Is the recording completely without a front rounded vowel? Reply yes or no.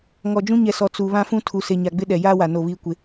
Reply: yes